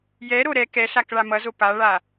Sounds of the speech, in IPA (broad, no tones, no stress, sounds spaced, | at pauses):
j ɛ ɾ o ɾ ɛ k ɛ ɬ a k ɭ a m ʌ z o p a ɭ a